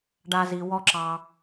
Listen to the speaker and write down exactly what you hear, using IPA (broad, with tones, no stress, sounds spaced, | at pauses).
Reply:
ɖ a˦ z i˧ w ɔ˦ ǁ ɑ˧